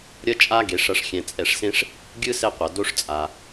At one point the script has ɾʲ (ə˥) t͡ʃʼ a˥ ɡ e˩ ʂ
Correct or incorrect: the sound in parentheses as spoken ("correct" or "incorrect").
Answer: incorrect